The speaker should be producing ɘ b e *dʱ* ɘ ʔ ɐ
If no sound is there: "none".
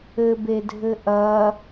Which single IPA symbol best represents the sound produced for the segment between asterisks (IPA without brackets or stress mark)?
dʱ